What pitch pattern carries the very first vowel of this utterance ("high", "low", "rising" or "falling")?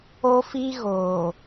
high